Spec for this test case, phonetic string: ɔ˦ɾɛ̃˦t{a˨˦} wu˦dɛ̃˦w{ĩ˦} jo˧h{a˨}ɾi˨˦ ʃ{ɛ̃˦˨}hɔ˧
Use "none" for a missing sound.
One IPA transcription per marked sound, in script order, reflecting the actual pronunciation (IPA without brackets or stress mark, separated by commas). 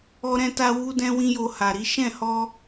a˦, ĩ˦, a˨, ɛ̃˦˨